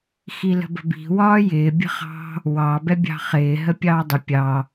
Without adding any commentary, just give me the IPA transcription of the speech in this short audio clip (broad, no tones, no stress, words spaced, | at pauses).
xilə̤bə̤bi̤ wɒːjɪː bʲə̤χɑ̤ | wɑ bɛbʲɑ̤χɪː ɦəpʲɑːdˤɪ pʲɑ